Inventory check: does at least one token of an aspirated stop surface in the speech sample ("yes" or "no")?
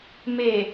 no